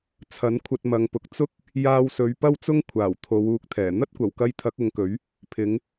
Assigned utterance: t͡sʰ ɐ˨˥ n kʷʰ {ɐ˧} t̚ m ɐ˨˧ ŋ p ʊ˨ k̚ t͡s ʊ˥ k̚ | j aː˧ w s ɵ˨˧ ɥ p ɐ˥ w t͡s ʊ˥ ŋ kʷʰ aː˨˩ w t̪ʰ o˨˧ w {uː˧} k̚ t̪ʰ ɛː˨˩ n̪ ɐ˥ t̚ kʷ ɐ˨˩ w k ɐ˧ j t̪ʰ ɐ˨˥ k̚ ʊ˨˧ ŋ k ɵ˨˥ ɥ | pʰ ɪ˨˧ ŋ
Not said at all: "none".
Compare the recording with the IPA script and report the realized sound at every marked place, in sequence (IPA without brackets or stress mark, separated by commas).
ɐ˧, uː˧